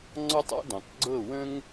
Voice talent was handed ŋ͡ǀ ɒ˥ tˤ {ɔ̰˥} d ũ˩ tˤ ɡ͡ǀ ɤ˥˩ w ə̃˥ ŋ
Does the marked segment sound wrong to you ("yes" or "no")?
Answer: no